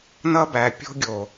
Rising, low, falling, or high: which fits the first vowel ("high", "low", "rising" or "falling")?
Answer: high